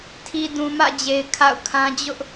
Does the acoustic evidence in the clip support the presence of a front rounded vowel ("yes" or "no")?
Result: no